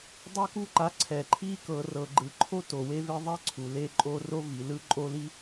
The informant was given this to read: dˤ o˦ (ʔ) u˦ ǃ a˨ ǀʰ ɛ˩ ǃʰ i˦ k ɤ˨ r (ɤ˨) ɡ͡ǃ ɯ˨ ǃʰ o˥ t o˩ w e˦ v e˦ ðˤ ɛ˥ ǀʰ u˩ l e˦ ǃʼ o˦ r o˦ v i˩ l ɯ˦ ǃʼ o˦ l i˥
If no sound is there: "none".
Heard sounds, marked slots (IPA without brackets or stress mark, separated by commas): k, ɤ˨